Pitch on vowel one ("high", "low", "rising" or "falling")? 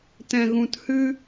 low